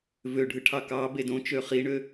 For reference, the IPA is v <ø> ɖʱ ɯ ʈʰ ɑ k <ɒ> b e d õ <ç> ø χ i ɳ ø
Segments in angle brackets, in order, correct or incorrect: correct, incorrect: ɑ, incorrect: t͡ʃ

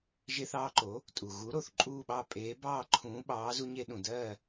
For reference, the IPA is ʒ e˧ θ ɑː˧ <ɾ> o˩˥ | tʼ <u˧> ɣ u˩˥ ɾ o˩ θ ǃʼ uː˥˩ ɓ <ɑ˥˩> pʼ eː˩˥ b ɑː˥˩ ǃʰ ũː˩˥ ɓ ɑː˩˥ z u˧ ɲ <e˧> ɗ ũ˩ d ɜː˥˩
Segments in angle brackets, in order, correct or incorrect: incorrect: ǃ, incorrect: u˩, correct, correct

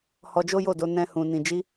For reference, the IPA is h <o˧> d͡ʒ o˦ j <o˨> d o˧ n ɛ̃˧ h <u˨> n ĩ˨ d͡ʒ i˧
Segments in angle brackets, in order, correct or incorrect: incorrect: ɔ˧, incorrect: o˦˨, incorrect: ũ˨

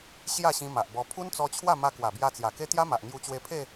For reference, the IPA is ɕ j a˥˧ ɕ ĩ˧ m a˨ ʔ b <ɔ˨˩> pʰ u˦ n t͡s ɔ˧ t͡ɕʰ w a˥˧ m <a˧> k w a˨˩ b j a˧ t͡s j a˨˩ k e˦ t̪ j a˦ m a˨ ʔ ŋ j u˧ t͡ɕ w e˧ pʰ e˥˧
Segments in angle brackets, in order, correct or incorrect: incorrect: ɔ˧, correct

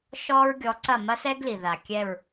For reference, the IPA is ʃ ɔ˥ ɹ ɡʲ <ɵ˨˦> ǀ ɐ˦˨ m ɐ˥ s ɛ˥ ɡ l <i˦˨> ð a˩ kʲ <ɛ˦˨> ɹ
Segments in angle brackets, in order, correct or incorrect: incorrect: ɔ˨˦, incorrect: i˩, correct

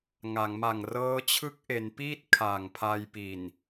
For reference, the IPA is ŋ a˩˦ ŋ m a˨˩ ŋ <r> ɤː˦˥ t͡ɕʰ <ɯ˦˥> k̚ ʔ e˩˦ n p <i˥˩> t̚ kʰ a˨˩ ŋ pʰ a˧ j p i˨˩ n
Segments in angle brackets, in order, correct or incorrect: correct, correct, incorrect: iː˥˩

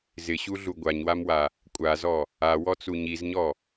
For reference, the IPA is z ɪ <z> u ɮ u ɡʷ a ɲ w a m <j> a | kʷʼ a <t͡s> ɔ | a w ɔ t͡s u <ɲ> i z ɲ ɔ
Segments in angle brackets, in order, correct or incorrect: incorrect: ɕ, incorrect: w, incorrect: z, correct

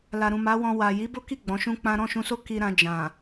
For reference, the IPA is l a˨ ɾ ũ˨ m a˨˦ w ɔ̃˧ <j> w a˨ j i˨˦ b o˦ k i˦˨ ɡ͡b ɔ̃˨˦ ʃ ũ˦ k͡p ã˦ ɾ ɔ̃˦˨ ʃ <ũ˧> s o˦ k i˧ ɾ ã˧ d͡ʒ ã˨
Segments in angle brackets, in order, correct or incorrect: incorrect: none, correct

